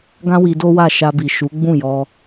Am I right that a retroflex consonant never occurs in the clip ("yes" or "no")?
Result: yes